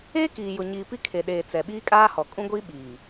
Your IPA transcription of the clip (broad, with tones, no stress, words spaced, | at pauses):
eː˦kiː˨jʊ˨ ɲiː˨pi˦kʰe˨ɗeː˨ t͡sɛ˨ ɓiː˦kʼaː˦hɔ˨ kʼũ˦ɡʷiː˦ ɓiː˨